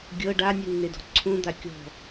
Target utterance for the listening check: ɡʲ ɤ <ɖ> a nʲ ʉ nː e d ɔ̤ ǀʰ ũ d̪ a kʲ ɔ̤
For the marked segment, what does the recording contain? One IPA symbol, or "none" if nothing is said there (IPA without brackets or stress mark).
ɖ